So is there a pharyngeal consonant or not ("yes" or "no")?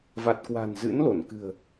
no